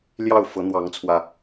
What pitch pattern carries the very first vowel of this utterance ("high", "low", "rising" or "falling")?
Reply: falling